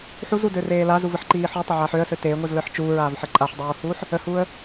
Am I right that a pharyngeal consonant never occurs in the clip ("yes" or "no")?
no